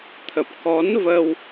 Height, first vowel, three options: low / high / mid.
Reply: mid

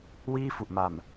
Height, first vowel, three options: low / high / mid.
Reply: high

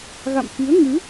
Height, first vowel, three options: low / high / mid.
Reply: low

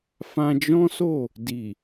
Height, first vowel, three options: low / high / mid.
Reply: low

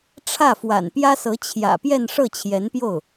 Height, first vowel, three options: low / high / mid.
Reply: low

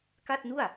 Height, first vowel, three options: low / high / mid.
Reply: low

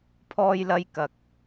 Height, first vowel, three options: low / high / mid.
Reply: mid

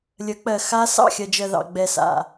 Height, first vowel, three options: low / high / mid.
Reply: mid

